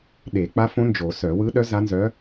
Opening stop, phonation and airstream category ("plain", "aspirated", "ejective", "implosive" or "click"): implosive